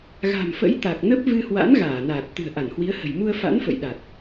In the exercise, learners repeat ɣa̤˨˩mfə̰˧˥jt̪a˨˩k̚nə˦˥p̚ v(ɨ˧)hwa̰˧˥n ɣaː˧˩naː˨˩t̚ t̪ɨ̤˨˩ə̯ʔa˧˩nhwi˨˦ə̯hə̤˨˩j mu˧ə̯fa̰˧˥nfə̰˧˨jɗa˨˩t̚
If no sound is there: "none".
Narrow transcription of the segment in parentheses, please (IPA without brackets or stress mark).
ɨ˧